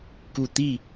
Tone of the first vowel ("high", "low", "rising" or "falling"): low